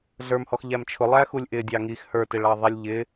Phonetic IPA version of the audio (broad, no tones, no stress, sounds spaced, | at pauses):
ɮ ə˞ m h ɔ x ʎ æ m t͡ʃʰ ʊ lˠ æ x u lʲ ʔ ɪ dʲ ɑ ŋ i x h ə˞ t ɪ ɭ ɑ ðˤ i lʲ ʎ ɪ